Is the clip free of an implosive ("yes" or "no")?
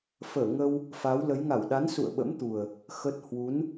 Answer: no